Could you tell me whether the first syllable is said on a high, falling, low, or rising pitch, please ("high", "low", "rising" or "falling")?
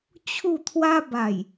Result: falling